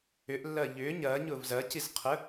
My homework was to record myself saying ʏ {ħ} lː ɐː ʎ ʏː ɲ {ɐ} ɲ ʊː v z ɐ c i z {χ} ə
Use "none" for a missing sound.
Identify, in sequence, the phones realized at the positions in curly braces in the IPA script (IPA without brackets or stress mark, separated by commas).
ʔ, ɐː, qʰ